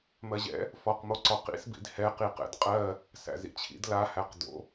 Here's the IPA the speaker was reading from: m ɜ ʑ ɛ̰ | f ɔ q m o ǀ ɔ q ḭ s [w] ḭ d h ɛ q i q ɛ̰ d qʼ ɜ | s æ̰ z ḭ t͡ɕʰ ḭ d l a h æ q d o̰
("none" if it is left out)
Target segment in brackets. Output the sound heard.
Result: b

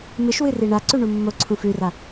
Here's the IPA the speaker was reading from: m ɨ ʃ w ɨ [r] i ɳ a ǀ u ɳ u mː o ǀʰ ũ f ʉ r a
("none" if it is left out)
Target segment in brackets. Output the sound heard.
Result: r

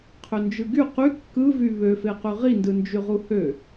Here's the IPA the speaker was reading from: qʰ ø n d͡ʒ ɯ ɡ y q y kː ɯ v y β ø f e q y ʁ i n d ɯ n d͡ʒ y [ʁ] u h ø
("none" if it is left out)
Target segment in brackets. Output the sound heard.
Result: ʁ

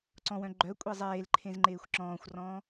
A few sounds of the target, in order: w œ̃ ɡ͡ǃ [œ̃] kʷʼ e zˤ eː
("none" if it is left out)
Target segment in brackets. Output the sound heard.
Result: œ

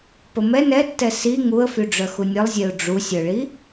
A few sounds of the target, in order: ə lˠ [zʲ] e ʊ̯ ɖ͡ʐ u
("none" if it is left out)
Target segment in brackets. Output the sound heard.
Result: zʲ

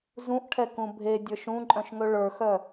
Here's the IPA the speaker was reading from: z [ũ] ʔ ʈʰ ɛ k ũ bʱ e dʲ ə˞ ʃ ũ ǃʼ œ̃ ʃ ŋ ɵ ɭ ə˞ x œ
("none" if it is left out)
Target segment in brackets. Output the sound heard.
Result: ũ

